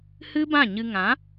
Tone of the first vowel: high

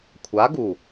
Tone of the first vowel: rising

